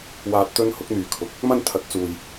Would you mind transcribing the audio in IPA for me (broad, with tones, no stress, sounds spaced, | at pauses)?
w aː˧ t̚ t̪ ɵ˥ n h ʊ˥ k̚ n̪ yː˨ kʰ ʊ˨˥ k̚ | m ɐ˥ n t̪ʰ ɐ˨˥ t̚ t͡s uː˨ j